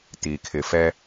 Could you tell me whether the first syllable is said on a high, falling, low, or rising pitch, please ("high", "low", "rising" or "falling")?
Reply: low